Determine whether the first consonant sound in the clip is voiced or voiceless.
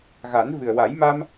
voiced